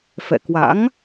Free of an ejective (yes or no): yes